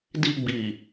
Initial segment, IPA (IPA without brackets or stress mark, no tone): d